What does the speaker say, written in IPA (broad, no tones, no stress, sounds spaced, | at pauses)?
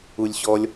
u lʲ ɕ ɔ lʲ